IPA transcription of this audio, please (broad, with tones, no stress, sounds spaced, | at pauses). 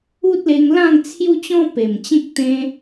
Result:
u˦ t̚ l e˧ ŋ l ã˥˧ ŋ t͡sʰ j u˦ t͡ɕ ɔ̃˦ p e˨˩ m t͡ɕ ẽ˦ k̚ t̪ ẽ˦